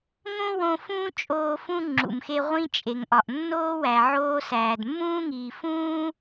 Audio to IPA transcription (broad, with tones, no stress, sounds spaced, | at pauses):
ŋ õ˥ w õ˦ f ũː˥ t͡ʃʼ oː˦ f ũ˥ ŋ͡ǁ ṵ˨ m x e˦ ʁʷ ĩ˦ t͡ʃʼ e˩ ŋ ʔ ɒ˩ ʔ nː oː˥ w æ˨ ʕ oː˦ s æː˩ d mː ũː˥ ŋ iː˨ f ũː˥